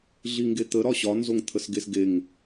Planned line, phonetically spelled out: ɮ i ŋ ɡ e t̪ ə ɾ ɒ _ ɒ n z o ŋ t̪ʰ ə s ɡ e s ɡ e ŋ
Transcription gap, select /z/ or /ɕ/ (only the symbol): ɕ